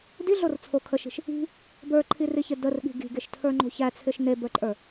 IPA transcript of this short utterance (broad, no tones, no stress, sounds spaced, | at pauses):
d i ɮ o r t͡sʰ o kʰ ə ʃ i̤ ʃ | i̤ | b ə˞ ǃʰ i r i ç ɪ d ə r ɠ i̤ ɡ i̤ ɡ e ʃ tʰ ə˞ ŋ͡ǃ o̤ ç æ t͡sʰ ɪ ʃ n e b ə˞ ǃʼ ə˞